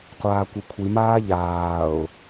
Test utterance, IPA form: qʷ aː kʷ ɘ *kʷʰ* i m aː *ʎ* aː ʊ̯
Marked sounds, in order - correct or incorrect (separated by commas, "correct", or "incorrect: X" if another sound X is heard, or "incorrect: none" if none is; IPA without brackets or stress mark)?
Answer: correct, correct